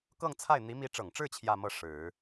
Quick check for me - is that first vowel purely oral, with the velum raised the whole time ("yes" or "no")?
yes